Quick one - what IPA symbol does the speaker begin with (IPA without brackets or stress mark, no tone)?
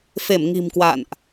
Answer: f